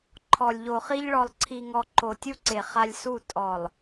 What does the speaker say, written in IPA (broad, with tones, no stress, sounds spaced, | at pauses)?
ǃʰ ɔ˨ lʲ ʎ o˨ χ i˦ ʎ ɭ ɔ˨ lˠ ǀʰ i˨ ŋ ɔ˨ ǃ o˨ tʲ u˦ ǀ e˨ χ a˦ lʲ s u˦˨ tʼ ɔ˨ lˠ